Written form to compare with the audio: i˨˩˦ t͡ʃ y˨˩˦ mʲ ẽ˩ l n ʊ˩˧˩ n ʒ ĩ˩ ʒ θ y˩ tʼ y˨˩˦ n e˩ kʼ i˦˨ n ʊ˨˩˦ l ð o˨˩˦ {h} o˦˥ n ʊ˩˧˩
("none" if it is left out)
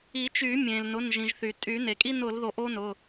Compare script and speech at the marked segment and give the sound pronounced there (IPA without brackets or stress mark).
ʔ